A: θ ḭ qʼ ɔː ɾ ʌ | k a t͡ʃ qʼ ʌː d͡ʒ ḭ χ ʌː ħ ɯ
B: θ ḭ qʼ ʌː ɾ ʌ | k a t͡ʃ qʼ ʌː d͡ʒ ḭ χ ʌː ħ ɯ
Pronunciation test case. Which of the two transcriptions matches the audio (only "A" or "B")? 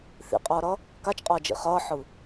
B